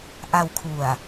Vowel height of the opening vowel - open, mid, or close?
open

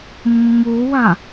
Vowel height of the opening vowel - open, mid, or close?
close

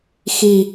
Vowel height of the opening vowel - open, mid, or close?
close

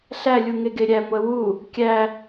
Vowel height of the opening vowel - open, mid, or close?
open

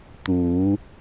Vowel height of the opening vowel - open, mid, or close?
close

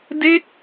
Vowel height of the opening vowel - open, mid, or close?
mid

